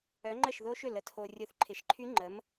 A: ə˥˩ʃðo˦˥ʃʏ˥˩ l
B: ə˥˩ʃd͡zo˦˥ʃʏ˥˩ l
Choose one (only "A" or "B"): A